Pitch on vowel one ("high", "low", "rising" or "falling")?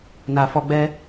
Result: low